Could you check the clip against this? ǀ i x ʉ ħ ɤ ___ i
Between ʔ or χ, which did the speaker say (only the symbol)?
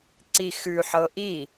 ʔ